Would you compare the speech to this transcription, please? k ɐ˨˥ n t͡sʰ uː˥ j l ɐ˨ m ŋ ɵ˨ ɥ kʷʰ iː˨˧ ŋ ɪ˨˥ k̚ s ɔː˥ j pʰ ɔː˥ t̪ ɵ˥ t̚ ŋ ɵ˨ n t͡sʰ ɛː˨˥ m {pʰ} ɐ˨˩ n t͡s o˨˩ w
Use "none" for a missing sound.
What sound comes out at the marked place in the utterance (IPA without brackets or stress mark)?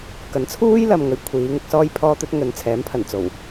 pʰ